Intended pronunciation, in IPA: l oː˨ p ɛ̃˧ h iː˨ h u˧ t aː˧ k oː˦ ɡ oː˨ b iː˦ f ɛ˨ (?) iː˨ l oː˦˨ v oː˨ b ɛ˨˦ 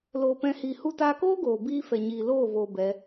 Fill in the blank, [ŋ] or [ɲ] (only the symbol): ɲ